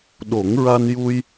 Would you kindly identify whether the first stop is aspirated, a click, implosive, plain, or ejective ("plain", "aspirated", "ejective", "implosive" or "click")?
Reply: implosive